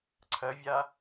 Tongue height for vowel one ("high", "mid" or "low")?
low